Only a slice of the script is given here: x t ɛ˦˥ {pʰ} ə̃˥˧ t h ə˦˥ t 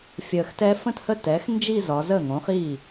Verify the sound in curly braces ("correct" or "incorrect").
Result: incorrect